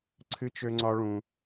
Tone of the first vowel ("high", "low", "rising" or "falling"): high